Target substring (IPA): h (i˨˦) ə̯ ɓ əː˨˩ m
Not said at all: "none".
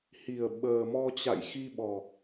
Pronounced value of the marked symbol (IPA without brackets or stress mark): i˨˩